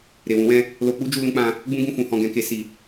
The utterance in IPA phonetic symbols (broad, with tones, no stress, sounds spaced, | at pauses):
ɾ e˨ w ũ˨˦ w ɛ̃˦˨ | l o˧ k͡p u˦ d͡ʒ u˧ l ũ˧ k͡p ã˧ | ɡ͡b ũ˦ ɡ ũ˦˨ f ũ˨ h ɔ̃˧ ɡ ɛ̃˧ k e˧ s i˨